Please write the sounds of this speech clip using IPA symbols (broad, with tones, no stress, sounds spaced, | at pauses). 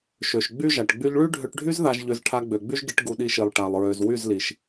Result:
ʃ ø˨ ʃ ɡ͡b y˦ ʒ a˨ ʈ ɡ͡b y˧ ʎ ɭ y˦ ɖʱ ø˧ ʈ ɖʱ y˦ z ð a˧ ʒ ʎ ø˧ z ʈʰ a˧ ɡ͡b ø˨ ɡ͡b y˦ ʒ ɡ i˧ ʈ ɡ u˧ ɗ i˧ ʃ i˨ lˠ ʈ a˨ lˠ ɹ ø˨ z w y˦˨ z l i˨ ʃ